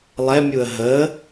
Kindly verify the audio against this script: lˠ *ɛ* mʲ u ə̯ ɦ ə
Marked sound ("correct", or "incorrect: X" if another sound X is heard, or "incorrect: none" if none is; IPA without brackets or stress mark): correct